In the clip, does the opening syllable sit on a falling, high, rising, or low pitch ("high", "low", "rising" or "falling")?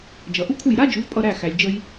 low